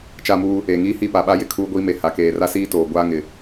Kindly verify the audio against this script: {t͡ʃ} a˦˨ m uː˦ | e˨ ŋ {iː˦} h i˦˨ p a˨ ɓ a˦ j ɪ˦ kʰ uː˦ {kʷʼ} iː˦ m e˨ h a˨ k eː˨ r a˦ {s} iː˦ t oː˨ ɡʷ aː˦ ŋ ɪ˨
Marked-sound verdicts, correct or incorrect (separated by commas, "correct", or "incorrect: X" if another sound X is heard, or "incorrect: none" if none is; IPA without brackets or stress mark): correct, correct, incorrect: ɡʷ, correct